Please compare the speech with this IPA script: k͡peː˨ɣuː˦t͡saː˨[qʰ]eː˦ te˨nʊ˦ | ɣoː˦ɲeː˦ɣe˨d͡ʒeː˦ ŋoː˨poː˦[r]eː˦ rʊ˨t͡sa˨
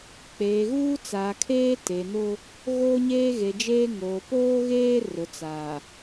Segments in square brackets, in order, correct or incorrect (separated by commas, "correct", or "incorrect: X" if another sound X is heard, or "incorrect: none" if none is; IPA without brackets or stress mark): incorrect: kʰ, incorrect: ɣ